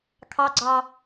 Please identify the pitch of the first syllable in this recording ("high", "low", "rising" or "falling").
high